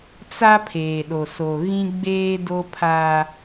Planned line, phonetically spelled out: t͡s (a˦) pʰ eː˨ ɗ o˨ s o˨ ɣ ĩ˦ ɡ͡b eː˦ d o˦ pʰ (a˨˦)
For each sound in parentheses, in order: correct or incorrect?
correct, incorrect: a˦

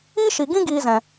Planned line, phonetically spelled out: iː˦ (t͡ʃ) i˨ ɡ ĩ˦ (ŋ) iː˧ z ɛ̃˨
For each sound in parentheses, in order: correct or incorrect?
incorrect: ʃ, incorrect: ɡ

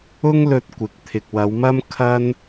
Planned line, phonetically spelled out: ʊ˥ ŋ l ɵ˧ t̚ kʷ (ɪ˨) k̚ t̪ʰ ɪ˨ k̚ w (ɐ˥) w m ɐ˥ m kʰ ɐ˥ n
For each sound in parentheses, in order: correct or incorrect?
correct, incorrect: ɐ˨˧

